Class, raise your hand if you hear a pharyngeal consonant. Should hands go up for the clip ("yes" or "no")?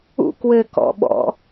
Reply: no